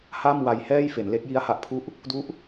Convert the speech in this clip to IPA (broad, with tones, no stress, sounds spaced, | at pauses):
h a˥˩ m w a˧ j h ɛː˥˩ j f e˩˦ n l e˦˥ k̚ j i˦˥ a̯ h a˨˩ ʔ pʰ u˦˥ ʔ | d u˦˥ ʔ